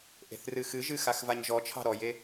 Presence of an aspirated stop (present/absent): present